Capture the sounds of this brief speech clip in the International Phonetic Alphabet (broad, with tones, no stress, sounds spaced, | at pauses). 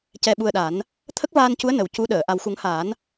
c ɛ˧ ɓ u˧ ə̯ ɗ a˨˩˦ n | t̪ʰ ə˦˥ k̚ v aː˧ n c u˧˥ ə̯ n ə˨˩ w c u˧˥ ɗ əː˨˩˨ ʔ a˨˩ w x u˨˩˦ ŋ h aː˨˩˦ n